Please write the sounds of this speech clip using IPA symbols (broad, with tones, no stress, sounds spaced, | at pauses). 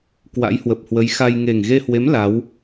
k w a̰˧˥ j h w ə˨˩ p̚ h w ə˨˦ j x a˧ j ŋ e˨˩ ŋ ɣ e˧ h w e˨˦ m l a˨˦ w